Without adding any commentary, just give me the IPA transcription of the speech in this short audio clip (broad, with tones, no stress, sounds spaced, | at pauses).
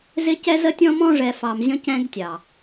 z ɪ˦ c ɛ˦ z ə˦ tʲ ɔ̃˦ m ɔ̃˦ ʐ ɛ˨ f ɑ˨ m ʑ ə̃˦ c ɛ̃˦ ɡ tʲ ɑ˨